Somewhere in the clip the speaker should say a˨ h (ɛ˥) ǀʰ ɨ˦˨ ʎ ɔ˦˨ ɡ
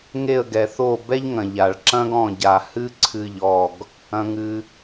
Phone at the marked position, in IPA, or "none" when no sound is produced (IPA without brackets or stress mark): ɨ˥